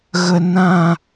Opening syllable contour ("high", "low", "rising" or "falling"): low